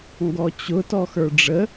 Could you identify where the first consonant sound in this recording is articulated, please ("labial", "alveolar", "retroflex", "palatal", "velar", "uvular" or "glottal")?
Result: velar